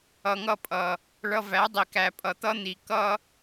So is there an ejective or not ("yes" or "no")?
yes